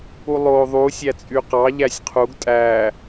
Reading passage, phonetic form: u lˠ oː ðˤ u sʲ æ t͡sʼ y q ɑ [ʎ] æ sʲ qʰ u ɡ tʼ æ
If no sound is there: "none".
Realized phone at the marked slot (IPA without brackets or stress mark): ʎ